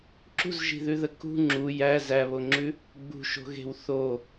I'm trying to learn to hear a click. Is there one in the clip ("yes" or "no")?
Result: yes